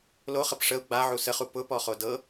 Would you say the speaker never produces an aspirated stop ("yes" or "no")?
yes